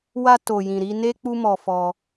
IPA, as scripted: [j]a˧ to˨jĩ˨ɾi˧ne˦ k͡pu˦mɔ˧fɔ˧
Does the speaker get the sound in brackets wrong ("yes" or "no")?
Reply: yes